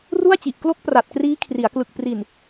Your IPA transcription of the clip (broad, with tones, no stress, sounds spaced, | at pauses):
r u˥˩ a̯ t͡ɕ i˨˩ ʔ k l o˦˥ k̚ p r a˨˩ t̚ k r iː˦˥ kʰ r i˩˦ a̯ k l ɯ˨˩ k̚ p r i˨˩ n